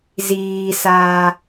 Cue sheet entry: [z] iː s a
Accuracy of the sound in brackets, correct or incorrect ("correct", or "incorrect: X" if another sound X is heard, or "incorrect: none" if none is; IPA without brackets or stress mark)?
correct